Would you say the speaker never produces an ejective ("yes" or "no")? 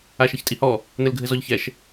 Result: no